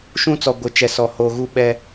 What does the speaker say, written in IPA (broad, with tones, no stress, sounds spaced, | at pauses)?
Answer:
ʃ ũ˦ t͡s ɔ˨ ɡʷ ɪ˨˦ t͡ʃ ɛ˨ s ɔ˨ h oː˨ ɣ u˦˨ ɓ ɛ˦